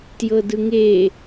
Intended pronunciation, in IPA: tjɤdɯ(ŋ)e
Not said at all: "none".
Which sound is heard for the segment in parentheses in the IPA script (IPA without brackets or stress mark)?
ŋ